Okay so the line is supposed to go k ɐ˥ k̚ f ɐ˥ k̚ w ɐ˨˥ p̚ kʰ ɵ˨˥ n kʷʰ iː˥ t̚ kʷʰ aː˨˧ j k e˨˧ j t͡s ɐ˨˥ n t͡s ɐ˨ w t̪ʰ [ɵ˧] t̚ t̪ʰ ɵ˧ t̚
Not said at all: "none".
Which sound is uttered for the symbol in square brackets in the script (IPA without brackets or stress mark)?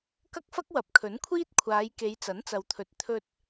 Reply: ɵ˨˥